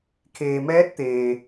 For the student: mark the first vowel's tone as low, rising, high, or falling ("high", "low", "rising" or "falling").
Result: low